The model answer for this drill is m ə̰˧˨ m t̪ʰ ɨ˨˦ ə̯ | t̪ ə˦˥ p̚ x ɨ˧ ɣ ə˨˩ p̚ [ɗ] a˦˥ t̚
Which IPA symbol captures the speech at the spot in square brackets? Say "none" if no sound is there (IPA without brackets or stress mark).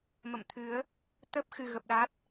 ɗ